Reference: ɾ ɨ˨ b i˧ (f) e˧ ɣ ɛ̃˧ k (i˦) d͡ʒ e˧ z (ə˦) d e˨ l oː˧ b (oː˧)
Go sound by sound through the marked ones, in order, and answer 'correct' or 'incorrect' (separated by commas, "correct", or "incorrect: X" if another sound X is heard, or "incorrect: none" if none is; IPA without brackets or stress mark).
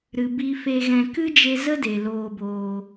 correct, incorrect: ɨ˦, correct, correct